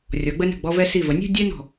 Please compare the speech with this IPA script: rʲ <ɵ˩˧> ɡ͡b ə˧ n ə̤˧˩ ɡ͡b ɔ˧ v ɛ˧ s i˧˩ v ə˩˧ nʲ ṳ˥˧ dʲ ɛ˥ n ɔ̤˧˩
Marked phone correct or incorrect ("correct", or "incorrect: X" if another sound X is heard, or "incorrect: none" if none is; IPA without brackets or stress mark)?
incorrect: ɔ˩˧